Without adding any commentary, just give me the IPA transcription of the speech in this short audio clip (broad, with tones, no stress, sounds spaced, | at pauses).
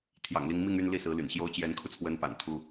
t̪ʰ j ɑ̰˨˩ ŋ l i˧˥ ŋ m i˥˧ ŋ y˥˧ n l i˥˩ s ɹ̩˧˥ l y̰˨˩ n ɕ j o˥ ʊ̯ t͡ɕ j ɛ˧˥ n kʰ u˧ t͡sʰ w ə˧˥ n p a̰˨˩ n t̪ʰ u˥